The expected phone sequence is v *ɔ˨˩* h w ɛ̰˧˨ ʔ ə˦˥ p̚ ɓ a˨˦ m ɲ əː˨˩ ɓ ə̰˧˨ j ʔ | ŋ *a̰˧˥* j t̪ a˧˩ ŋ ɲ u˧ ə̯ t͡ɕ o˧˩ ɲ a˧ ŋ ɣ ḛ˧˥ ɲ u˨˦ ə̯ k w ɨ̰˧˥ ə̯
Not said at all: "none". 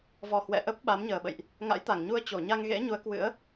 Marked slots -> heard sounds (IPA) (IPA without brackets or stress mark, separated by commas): ɔ˨˩, a̰˧˥